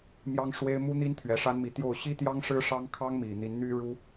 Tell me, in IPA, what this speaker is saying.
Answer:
m j ɑ˥ ŋ ʂ w e˥ ɪ̯ m u˥ n̪ i˥ n t̪ʰ ɥ ɛ˧˥ ʂ a˥ n m i˧˥ t̪ j o˥˩ ʊ̯ ɕ i˥ t̪ j ɑ˥ ŋ ʂ ɻ̩˥ ʂ ɑ˥ ŋ kʰ ɑ˥ ŋ m i˨˩ n̪ i˧˥ n n̪ y˥ ɻ u˥

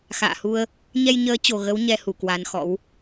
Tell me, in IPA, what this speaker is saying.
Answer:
x a̰ː˧˨ h u˧ ə̯ | ɲ ɛ˧ j ɲ əː˨˦ t͡ɕ o˨˩ ɣ ə˨˦ w ɲ ɛ˧ h u˧˩ k w a˨˦ n x ɔ̰˧˥ w

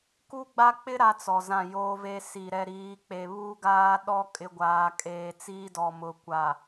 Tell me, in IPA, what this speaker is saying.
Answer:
k u˦ ɡ͡b a˦ k͡p ɪ˦ ɾ a˦ t͡s ɔ˨ z ã˦˨ j oː˦ v e˦ s i˨ ɾ ɛ˨ ɾ iː˨˦ k͡p e˨ β u˦ ɡ aː˦ ɗ ɔ˦ kʼ ɪ˦ ɡʷ aː˨ kʼ eː˨ t͡s iː˦ d ɔ˨ m ʊ˨ kʷ a˨

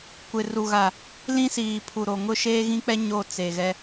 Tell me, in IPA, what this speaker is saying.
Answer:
kʷ ɪ˨ r u˨ ɣ a˨ | l ĩ˦ s iː˨ pʰ u˨ ɾ o˨ ŋ ʊ˦ ʃ eː˦ ɣ ĩ˦ k͡p ɛ˦ ɲ o˦˨ t͡s e˨ ɣ ɛ˦

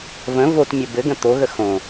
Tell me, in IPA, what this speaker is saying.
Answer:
v ə̃ v o t mʲ ə b ɘ ɡ ə̃ t̪ o ɣ ə x õ

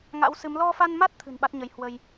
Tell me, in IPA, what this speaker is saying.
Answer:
ŋ a̰˧˥ w s ɨ˨˦ m l ɔ˧ f a˧ n m a˦˥ t̚ t̪ʰ ɨ̤˨˩ n ɓ a˦˥ t̚ ɲ ə˨˦ j h w ə˧ j

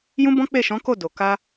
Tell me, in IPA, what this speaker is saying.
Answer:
j ũ˦ b ɔ̃˦ k͡p e˦˨ ʃ ɔ̃˨˦ k o˦˨ d o˨ k a˧

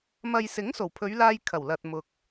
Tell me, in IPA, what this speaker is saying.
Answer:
m ɐ˨ j s ɪ˨˥ ŋ s o˨˩ w pʰ ɵ˨˧ ɥ l aː˧ j kʰ ɐ˨˩ w l ɐ˨ t̚ m ʊ˧ k̚

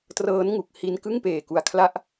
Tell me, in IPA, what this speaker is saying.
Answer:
t r ɤː˦˥ n ŋ u˨˩ k̚ h i˧ n k ɯ˥˩ ŋ p eː˨˩ k u˨˩ a̯ kʰ l a˦˥ ʔ

